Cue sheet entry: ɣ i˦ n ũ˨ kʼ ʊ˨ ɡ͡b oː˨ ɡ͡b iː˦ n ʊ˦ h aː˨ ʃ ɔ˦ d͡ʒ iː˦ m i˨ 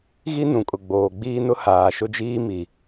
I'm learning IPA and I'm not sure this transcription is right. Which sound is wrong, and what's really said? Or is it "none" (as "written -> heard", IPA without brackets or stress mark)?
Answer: ɔ˦ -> ʊ˦